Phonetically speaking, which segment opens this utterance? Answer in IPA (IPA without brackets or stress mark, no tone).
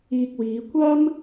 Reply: iː